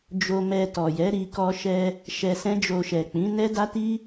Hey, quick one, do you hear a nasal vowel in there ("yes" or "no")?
yes